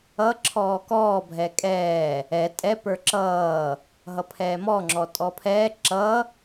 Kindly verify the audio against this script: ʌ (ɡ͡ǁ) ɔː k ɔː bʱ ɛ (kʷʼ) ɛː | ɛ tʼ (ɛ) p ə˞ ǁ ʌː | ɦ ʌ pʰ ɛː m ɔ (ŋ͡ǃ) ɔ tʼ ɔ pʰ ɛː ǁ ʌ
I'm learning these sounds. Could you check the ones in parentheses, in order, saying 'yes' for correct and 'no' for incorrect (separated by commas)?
no, no, yes, no